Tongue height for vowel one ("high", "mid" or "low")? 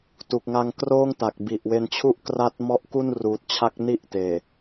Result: high